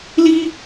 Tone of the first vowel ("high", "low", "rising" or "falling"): high